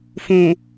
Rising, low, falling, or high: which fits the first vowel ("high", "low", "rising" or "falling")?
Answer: low